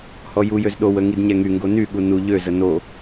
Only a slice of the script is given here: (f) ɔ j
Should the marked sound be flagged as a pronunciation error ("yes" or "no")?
yes